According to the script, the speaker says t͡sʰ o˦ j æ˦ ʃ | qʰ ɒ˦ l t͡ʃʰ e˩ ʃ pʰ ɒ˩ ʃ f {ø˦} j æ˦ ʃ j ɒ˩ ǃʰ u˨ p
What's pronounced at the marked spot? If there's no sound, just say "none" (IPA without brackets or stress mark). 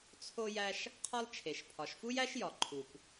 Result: u˦